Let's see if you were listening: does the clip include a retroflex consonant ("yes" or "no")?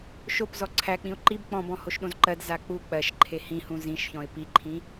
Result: no